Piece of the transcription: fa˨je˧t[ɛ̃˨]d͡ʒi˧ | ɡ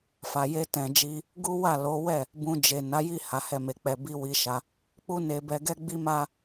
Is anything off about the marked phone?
no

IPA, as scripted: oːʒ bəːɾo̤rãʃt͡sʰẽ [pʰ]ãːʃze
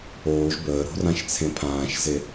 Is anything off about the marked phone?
no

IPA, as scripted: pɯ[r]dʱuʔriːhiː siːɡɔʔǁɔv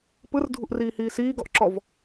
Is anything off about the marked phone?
no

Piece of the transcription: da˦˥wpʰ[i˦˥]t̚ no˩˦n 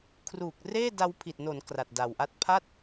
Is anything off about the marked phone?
yes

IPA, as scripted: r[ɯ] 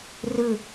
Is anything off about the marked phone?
no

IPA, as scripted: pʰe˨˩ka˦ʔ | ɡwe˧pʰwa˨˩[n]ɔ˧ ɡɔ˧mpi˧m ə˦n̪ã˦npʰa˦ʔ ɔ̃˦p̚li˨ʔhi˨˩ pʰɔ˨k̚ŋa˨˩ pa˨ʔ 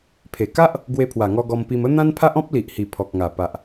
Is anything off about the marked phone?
yes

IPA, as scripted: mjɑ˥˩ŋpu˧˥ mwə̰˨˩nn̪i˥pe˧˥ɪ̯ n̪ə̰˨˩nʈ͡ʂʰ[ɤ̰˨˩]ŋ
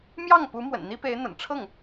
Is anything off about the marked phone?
yes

